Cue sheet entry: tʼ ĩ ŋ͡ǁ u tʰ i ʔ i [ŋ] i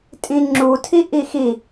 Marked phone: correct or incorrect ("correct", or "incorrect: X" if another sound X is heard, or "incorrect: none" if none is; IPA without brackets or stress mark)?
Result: incorrect: x